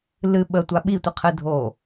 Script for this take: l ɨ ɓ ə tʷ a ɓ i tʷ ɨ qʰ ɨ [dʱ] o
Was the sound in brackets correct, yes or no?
yes